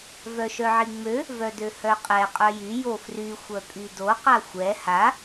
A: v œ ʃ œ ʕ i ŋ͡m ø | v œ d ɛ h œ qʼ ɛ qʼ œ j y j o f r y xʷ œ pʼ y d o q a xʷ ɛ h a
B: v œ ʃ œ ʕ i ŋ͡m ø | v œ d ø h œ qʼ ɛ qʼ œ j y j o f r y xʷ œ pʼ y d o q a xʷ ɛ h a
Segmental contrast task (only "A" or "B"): B